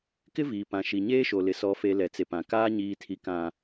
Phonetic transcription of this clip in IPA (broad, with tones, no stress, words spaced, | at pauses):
kɪ˦viː˨pã˨ ʃi˨ɲeː˦ʃo˨lɪ˨ sɔ˨fe˨ lɛ˨t͡se˨pã˨ kaː˦ ɲiː˨tʰi˨kã˨